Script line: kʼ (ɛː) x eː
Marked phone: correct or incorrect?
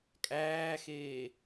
incorrect